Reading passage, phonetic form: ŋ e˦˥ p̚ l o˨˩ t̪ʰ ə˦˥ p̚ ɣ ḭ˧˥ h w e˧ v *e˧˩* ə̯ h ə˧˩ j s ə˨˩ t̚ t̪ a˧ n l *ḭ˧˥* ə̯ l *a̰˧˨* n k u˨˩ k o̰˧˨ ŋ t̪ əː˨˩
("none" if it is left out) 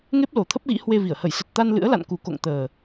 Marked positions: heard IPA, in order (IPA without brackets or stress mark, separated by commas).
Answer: i˧˩, ɨ̰˧˥, a̰˧˨